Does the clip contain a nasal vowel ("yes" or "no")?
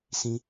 yes